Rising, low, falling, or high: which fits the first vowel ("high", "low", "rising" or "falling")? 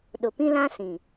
low